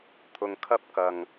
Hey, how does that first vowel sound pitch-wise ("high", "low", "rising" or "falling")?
low